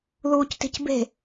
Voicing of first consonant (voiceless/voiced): voiced